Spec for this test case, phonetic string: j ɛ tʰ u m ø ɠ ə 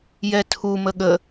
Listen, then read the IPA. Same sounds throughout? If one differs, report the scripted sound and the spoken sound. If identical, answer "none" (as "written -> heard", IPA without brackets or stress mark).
ø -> ə